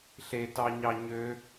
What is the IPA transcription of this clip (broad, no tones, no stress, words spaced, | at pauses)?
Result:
ɬetɑɲɑ ɲø